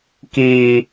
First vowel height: high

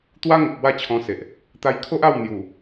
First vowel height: low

